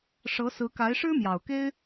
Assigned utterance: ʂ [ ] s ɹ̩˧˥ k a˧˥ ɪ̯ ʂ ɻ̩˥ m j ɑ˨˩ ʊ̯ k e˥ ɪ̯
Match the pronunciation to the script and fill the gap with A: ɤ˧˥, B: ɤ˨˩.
A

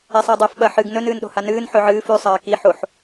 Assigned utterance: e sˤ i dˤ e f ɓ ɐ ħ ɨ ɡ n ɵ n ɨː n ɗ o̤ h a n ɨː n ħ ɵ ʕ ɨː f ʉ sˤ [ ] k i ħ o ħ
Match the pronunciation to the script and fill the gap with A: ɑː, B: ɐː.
B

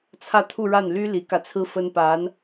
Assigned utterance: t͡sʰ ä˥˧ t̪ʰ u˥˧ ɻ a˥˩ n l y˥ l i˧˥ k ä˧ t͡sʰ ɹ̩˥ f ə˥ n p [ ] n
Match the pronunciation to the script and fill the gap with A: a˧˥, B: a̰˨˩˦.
A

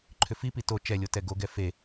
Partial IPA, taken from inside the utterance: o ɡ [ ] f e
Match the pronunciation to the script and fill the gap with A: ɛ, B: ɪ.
A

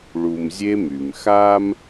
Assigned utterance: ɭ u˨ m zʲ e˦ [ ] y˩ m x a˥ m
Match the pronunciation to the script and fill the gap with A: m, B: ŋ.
A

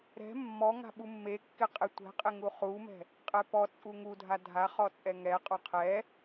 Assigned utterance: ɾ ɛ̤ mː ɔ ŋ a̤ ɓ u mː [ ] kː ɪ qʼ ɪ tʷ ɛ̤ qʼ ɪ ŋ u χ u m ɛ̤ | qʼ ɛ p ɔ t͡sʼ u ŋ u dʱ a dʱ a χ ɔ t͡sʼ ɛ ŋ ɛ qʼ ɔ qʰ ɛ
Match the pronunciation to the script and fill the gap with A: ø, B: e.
B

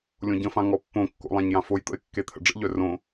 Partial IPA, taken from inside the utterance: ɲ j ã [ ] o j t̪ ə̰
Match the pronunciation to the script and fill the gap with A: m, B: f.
B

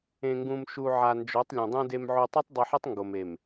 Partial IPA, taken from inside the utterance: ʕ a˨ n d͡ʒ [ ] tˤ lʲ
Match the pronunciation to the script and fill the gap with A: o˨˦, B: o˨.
A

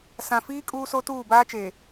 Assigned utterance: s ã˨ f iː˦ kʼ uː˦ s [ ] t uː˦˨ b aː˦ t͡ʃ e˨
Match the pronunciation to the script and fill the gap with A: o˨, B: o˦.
B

